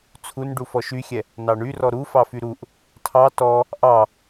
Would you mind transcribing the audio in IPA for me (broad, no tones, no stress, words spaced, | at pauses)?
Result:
t͡sʰun ɖufɔʃyxʲɛ | nɑɳyrɔ ɾu fɑfyɾuʔ | tʰɑ tɔ | ʔɑ